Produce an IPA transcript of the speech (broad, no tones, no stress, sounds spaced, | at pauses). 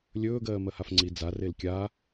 lʲ ɵː ɡ ɜː m ɜ h a f ŋ͡ǀ i d͡z a r e l kʲ aː